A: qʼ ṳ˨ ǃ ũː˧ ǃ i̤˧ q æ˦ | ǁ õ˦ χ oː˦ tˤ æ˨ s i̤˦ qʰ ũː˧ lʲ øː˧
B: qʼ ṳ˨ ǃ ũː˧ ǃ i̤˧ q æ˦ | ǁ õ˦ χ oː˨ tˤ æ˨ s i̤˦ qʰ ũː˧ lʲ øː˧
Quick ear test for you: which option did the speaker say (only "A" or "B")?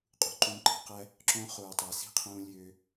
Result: B